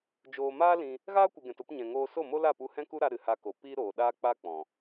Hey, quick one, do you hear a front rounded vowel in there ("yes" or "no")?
no